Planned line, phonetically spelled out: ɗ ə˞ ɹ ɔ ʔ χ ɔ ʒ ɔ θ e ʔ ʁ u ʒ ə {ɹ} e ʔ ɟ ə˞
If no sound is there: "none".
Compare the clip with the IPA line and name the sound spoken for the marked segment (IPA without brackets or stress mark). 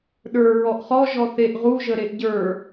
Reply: ɾ